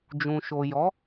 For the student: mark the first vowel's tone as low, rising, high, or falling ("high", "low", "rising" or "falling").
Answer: low